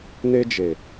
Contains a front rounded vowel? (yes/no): no